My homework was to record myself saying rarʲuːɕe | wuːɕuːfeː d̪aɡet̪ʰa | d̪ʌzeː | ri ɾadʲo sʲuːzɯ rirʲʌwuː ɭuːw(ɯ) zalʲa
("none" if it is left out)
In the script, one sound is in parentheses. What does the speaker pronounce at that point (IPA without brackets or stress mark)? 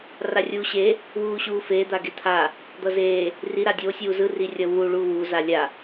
u